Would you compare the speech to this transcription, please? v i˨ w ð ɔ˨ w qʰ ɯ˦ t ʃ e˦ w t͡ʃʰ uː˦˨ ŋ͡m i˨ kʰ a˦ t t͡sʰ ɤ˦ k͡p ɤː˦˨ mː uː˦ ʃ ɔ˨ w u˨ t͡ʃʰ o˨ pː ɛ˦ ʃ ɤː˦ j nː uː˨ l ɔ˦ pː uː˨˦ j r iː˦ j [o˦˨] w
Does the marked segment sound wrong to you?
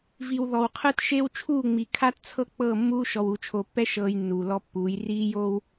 yes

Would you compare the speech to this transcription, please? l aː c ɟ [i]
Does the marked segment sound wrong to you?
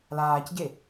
yes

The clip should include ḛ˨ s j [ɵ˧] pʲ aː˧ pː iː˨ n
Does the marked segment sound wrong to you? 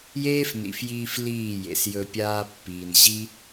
no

